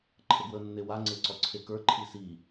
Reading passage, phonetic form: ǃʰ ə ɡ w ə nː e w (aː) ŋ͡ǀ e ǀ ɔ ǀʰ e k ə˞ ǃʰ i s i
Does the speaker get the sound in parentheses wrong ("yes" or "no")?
yes